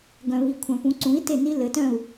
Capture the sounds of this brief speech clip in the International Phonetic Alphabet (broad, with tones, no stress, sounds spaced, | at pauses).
ɡ œ̃˩ β i˩ kʷʰ œ̃˩ p ũ˩˥ ǀ ũ˩˥ i̯ t e˥˩ n i˥ l ɘ˩˥ t œ̃˥˩ u̯